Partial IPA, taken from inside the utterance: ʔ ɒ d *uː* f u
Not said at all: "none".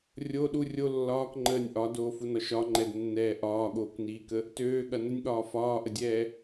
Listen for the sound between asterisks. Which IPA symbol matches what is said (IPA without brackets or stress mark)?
oː